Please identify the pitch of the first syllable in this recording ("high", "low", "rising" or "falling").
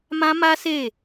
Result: high